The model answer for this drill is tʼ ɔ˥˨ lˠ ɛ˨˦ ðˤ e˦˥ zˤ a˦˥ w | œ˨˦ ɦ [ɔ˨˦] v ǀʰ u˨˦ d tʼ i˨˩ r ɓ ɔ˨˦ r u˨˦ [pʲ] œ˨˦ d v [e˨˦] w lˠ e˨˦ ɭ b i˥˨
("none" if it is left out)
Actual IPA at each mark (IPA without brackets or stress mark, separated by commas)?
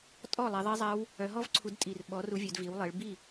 ɔ˦˥, vʲ, i˨˦